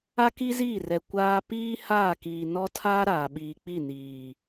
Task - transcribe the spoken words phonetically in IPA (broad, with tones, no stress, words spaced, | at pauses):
a˦ki˦ziː˦˨rɛ˨ kʷaː˦ piː˦ haː˦˨kiː˨ nɔ˦tʰaː˦ ɾaː˨ɓiː˨k͡pi˦˨niː˨